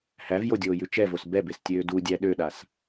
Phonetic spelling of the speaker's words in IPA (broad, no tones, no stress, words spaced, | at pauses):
hævjodʲoːjʉ t͡ʃɛvos bɛbestʲøː dudʲæ ɗøɗas